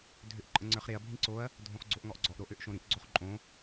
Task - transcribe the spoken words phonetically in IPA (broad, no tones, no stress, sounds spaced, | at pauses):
dʱ ø ʔ ǃʼ ə̃ ŋ͡ǀ ə˞ χ ɾ e ɐ̯ bʱ ĩ ǀ o ɐ̯ | dʱ õ χ ɡ͡ǀ o ʔ ŋ ɔ ʔ ɡ͡ǀ ɔ ʔ ɾ o ʔ ø ʔ ʃ õ ɾ ĩ ʔ ɡ͡ǀ o χ ǃʼ õ